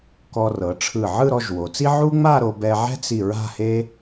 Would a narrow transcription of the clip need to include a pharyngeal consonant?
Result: yes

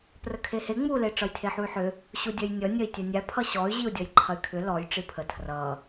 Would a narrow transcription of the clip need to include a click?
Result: yes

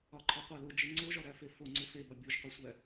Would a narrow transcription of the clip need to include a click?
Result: yes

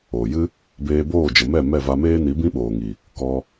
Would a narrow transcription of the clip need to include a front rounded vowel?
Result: no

